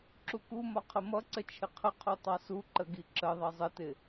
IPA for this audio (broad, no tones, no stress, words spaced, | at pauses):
ǁukumɒ qʰəmʌǀə t͡ʃʰɪqʰəqʰu tˤɑsuǃə ɡiǁəðˤʌ zˤətɪ